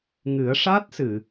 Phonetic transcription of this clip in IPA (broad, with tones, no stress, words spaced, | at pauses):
ŋɨ˨˩˦ə̯ʂa˦˥t̚sɨ˨˩˨